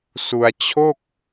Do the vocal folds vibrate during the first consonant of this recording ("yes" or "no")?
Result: no